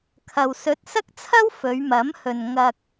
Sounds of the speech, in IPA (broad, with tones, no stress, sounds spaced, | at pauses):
kʰ ɐ˨ w s ɵ˨˥ t̚ s ɐ˥ k̚ t͡sʰ ɐ˥ w f ɵ˨˧ ɥ m ɐ˨˥ m h ɵ˨ n ŋ ɐ˨ k̚